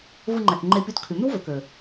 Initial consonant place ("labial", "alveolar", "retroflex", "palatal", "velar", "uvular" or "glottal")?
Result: labial